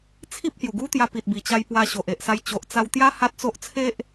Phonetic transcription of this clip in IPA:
t͡sʰ i˦ p̚ h j u˨˩ ɡ u˦ t̪ j a˧ p i˨ t̚ b i˨˩ t͡ɕ a˧ j p w a˧ ɕ o˨ ʔ e˨ ʔ s a˧ j t͡ɕ o˨ ʔ t͡s a˧ w t̪ j a˦ h a˦ t̚ t͡s o˦ ʔ t͡sʰ e˦ ʔ

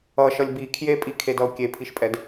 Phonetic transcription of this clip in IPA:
ʌ ʃ ʌ lʲ b i kʰ j e pʼ i kʰ e d ʌ ʊ̯ kʲ e pʰ i ʃ pʼ ɛ d

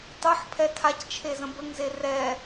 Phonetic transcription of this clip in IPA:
tˤ ɤ ħ pʰ ɛ tʰ a c t͡ʃʰ e z ə̃ b ə ŋ z e r ɛ

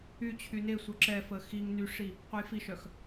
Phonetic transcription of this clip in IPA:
y t͡ɕʰ y n e sʷ œ ǁ ɛ f ə x i ŋ n y ʂ i | qʷ ə j f i ʃ œ x

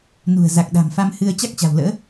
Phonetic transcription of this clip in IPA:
n ṳ˨˩ ə̯ z a˨˩ k̚ ɗ a̤˨˩ m f a˧ m h ɨ˧ ə̯ t͡ɕ a˦˥ k̚ t͡ɕ a̤˨˩ w l ə̰ː˧˥

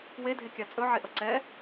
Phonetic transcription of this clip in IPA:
w e dʱ e kʲ a t͡sʼ ɵ ʕ e ʔ ʌ ǀ ɛ

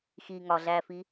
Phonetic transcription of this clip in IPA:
x i ŋ ɒ ɮ æ f i

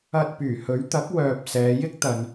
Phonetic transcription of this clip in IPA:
ɐ˧ t̚ p yː˨˩ h ɵ˨˥ ɥ t̪ ɐ˨˥ k̚ w œː˧ p̚ s ɛː˨˧ j ɪ˥ k̚ t̪ ɐ˨ n

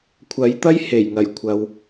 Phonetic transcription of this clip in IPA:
kʷʰ ɐ˨˥ j t̪ ɐ˥ j h e˨˩ j ŋ ɐ˨˩ j kʷʰ ɐ˨ w

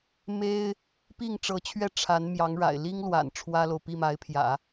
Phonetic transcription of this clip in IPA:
m e˥ ɪ̯ | p i˥˩ ŋ ʈ͡ʂ ɤ˧˥ t͡ɕʰ ɥ ɛ˥˩ ʈ͡ʂʰ a˧˥ n m j ɑ˧˥ ŋ ɻ a̰˨˩ ɪ̯ l i˥ ŋ l w a̰˨˩ n ʈ͡ʂʰ w ä˥ l o˨ ʊ̯ p i˥˩ m a˧˥ ɪ̯ pʰ j ä̰˨˩˦

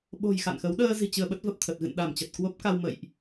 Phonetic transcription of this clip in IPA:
ɓ o̤˨˩ j x a̰˧˨ n x ə˨˦ w ɗ əː˧ z i̤˨˩ t͡ɕ ɨ˧ ə̯ ɓ ə˦˥ t̚ v ə˨˩ p̚ t̪ʰ ə˨˩ t̚ ɣ ɨ̰˧˨ n ɗ a˧˩ m t͡ɕ ə˨˩ t̚ k w o˦˥ p̚ k a˧ w m ə̰˧˨ j ʔ

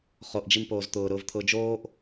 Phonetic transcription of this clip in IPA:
χ o ʔ d͡ʒ i m p oː z t̪ ʊː ɾ ʊː v t̪ʰ ʊː d͡ʒ oː ʔ

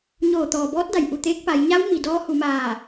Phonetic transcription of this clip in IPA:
ɲ oː˧˩ t̪ ɔː˩ b ɔː˧˥ t̚ d a˩ j ʔ u˧˩ t̪ eː˧˥ k̚ p a˩˧ j ɲ a˧˥ w m i˩ d ɔː˧˥ h u˩˧ m aː˧˩

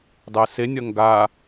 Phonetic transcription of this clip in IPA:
dˤ ɛ s e nʲ ɐ ŋ ɡ a

